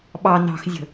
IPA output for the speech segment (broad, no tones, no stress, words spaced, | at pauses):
ɓɑ nɑ̤xzʲə̤